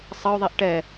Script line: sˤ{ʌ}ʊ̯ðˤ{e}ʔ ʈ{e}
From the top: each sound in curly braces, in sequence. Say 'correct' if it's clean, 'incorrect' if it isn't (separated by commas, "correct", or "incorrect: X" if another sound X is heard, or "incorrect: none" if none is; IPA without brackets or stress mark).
correct, incorrect: i, incorrect: ɛ